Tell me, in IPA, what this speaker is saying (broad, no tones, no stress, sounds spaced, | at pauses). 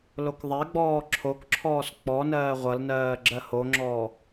l o k ðˤ ɛ ɡ͡b ɔː ǁʰ o k ǁʰ ɔː s k͡p ɔ n ɜː ʁʷ ʌ l n ɜː ɡ͡ǁ ɜ h o ŋ͡ǁ ɔː